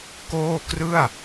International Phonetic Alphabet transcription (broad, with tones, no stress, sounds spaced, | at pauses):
k oː˥˩ k r ɯ˥˩ a̯